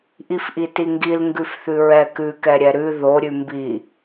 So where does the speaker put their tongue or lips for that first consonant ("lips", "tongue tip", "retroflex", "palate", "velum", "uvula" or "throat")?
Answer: throat